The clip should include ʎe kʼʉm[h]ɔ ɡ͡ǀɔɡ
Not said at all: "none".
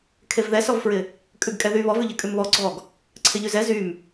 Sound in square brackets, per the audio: β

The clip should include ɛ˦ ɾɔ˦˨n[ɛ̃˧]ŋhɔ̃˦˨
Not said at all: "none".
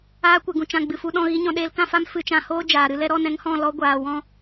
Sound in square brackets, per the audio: ɛ̃˧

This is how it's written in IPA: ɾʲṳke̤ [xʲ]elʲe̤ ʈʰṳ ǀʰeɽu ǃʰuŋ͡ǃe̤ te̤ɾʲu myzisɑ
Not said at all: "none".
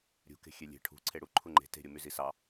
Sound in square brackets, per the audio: xʲ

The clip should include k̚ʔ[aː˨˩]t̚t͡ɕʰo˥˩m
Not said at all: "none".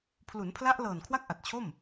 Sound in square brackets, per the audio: a˨˩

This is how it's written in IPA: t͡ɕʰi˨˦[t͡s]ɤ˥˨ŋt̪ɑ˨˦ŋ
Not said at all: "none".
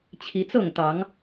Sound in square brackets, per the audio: t͡s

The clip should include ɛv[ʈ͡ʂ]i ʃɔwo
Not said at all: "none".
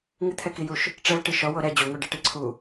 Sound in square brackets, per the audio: ʈ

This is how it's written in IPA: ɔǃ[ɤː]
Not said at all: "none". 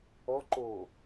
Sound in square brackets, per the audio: oː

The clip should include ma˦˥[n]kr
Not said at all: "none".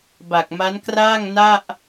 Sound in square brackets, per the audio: n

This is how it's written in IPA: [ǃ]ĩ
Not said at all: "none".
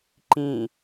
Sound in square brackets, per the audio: ǃ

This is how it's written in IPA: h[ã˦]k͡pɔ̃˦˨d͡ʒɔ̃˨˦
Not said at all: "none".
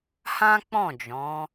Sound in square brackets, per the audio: ã˦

